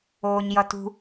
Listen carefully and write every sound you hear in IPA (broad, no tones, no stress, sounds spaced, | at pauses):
oː ɲ j ʌ t ṳ